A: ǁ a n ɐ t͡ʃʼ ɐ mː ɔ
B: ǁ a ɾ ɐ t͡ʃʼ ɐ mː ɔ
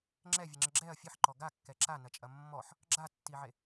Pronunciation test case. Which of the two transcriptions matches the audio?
A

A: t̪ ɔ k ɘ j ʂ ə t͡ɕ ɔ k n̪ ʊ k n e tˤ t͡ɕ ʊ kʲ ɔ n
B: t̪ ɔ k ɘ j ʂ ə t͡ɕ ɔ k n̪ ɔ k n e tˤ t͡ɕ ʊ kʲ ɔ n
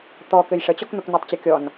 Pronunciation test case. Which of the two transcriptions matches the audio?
A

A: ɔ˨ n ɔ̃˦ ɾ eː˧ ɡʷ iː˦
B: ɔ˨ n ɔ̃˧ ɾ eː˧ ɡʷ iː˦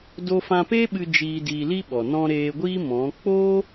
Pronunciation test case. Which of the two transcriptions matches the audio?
B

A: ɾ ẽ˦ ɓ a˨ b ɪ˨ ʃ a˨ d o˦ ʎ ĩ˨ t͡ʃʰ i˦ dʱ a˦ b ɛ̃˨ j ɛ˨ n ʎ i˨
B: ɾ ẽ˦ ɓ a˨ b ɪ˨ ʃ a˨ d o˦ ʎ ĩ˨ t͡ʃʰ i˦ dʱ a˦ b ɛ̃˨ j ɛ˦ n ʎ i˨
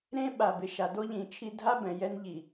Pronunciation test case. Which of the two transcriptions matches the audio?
B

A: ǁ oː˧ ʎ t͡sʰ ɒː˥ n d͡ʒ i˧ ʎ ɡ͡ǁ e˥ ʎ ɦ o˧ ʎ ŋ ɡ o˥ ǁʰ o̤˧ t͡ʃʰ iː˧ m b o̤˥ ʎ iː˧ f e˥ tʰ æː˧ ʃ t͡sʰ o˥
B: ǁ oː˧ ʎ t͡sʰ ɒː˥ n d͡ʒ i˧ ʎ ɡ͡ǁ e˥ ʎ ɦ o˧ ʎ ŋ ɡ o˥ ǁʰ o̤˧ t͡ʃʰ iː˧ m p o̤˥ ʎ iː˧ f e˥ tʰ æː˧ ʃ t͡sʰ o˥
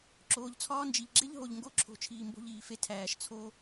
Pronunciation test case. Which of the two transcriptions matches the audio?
A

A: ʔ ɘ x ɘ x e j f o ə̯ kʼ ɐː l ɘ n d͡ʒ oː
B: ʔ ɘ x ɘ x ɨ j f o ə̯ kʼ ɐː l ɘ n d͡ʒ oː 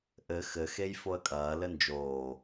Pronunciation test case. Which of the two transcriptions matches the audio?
A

